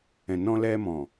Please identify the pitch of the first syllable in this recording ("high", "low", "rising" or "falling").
low